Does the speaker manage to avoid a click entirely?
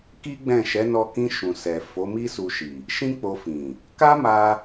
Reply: yes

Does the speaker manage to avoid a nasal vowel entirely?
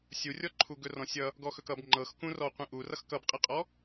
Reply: no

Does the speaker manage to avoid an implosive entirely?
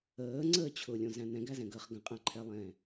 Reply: yes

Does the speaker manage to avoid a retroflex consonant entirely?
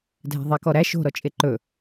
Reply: yes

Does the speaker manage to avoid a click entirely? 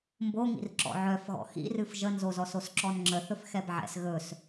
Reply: no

